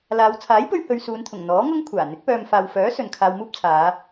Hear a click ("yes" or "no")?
no